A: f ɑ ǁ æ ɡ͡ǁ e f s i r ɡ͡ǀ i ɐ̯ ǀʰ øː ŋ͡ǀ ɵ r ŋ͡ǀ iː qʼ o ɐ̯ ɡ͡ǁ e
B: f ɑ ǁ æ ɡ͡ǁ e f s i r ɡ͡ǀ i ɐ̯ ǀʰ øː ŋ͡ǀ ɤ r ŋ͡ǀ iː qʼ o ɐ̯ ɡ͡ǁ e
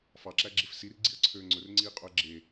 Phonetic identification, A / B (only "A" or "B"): A